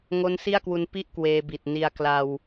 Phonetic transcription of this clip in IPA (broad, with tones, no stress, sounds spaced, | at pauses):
ŋ o˦˥ n s i˥˩ a̯ k w u˧ n p i˥˩ ʔ k w eː˧ b i˨˩ t̚ n i˧ a̯ k l a˧ w